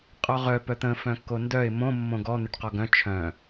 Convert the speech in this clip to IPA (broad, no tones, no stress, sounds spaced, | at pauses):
qʼ ɔ ʁ œ p œ t̪ ə̃ f œ̃ kː o n d œ ɪ̯ m õ mː õ ɡ ɔ n̪ ʏ ʈ q ɔ ɡ œ̃ t͡ʃʰ œ̃